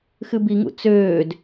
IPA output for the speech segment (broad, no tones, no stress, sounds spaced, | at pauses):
x ɨ b i ŋ ṵ t͡s øː d